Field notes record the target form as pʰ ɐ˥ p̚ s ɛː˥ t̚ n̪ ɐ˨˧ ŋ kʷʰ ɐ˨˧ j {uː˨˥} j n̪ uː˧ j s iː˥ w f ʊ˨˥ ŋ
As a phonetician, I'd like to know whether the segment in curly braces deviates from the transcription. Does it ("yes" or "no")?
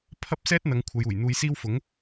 yes